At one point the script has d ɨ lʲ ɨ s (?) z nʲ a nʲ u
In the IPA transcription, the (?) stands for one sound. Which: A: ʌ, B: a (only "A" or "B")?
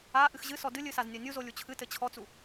B